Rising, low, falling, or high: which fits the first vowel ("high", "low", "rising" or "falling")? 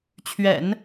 low